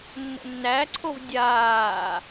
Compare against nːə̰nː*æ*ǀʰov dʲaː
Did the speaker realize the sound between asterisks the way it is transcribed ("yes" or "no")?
yes